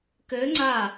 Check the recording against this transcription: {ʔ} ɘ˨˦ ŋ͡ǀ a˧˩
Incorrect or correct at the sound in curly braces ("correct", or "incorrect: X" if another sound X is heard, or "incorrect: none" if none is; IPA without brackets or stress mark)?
incorrect: k